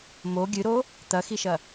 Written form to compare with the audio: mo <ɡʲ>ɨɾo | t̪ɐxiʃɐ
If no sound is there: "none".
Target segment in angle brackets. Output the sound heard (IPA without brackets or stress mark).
ɡʲ